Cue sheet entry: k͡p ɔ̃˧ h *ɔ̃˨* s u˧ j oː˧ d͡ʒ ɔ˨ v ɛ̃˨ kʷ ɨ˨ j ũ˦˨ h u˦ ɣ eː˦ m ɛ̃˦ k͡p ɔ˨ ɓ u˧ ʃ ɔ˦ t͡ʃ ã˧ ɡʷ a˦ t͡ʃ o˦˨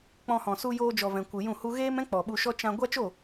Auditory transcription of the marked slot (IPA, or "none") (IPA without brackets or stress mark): ɔ̃˨